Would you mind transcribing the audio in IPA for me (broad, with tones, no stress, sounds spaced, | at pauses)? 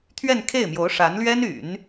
t̪ʰ ɥ ɛ˥˧ n kʰ e˥˩ ɪ̯ m j o˧˥ ʊ̯ ʂ a˧˥ n l ɥ ɛ˥ n y̰˨˩˦ n